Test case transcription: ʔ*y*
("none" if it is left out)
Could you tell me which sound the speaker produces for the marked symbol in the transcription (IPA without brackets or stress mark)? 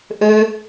ø